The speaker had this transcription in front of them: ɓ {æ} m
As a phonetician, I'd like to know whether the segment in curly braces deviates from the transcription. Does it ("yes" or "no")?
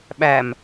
no